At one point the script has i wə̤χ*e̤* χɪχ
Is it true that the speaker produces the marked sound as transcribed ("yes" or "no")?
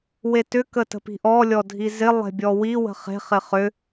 yes